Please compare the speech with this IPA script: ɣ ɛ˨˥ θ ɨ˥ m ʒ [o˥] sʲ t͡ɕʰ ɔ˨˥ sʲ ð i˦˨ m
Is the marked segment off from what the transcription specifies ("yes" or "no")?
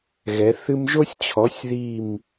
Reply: no